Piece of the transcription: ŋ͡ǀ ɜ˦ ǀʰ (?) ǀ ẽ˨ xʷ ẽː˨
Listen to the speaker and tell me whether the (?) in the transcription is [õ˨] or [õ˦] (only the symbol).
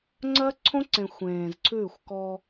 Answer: õ˦